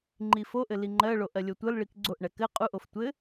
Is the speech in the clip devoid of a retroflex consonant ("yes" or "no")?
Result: no